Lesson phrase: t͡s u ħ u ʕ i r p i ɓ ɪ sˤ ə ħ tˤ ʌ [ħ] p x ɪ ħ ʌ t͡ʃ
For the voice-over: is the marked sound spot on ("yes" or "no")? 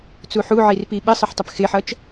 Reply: no